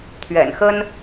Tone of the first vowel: low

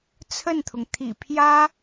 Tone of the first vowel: falling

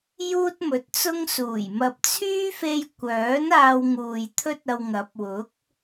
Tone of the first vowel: high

